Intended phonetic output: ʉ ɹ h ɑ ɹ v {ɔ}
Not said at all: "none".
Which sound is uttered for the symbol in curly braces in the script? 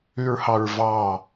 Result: ɑ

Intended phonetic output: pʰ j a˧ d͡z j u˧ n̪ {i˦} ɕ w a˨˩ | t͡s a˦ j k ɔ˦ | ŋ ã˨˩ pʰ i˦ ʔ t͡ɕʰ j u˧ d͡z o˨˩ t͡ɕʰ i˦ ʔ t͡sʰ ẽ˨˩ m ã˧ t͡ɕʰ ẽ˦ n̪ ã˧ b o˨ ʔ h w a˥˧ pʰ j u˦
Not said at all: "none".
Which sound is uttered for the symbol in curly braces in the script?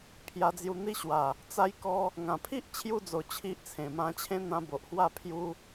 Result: i˦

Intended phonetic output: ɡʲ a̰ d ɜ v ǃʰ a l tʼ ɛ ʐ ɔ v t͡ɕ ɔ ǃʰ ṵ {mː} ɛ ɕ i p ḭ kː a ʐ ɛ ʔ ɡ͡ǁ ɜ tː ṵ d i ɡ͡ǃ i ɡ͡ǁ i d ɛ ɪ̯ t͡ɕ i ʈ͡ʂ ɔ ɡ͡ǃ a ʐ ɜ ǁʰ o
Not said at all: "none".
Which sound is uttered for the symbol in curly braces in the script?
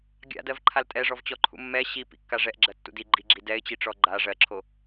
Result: mː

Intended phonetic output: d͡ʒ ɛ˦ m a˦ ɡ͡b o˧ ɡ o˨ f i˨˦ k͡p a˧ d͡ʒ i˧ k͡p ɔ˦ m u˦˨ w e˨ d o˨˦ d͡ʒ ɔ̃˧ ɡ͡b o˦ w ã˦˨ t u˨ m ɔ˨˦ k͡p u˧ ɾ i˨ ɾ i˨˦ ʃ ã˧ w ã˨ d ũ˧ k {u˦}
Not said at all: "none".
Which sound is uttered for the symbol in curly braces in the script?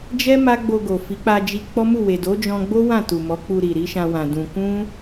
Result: ũ˦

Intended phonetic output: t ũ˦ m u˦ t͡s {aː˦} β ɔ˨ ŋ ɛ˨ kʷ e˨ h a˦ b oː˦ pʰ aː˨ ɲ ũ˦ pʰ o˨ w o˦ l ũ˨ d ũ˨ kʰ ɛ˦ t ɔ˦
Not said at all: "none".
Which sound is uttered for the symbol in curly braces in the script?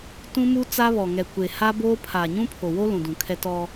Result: a˦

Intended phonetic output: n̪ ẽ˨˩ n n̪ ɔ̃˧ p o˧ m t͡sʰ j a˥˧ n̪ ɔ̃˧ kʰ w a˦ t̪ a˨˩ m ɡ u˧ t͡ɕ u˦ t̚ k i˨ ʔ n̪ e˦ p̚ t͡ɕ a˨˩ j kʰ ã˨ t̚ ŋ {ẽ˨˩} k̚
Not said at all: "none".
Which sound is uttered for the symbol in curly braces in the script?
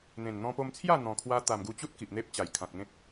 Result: ẽ˦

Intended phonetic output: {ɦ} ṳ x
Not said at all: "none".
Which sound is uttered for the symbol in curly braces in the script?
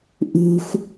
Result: ʔ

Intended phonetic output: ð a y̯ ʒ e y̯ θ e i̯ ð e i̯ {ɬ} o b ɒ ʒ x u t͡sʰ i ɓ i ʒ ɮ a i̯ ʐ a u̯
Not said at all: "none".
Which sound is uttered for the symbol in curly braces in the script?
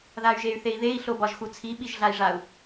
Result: ɬ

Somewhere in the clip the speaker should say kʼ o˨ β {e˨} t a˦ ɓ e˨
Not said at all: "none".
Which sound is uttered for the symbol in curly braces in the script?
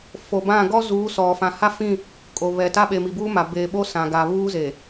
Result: ɛ˨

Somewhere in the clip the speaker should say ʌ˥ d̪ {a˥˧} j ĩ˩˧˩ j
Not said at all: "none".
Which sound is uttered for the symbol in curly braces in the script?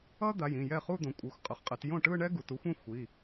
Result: a˩˧˩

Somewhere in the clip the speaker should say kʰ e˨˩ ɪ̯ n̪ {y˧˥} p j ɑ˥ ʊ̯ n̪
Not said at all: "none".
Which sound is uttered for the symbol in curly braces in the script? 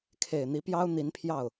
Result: i˧˥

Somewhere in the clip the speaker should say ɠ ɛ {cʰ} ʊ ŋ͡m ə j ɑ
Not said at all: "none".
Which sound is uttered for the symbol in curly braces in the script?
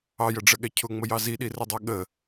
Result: cʰ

